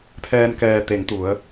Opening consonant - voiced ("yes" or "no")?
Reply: no